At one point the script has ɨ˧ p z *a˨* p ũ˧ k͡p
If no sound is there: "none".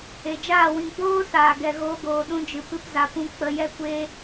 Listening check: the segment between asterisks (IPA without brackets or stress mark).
a˨